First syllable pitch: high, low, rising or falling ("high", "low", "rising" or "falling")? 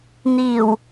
low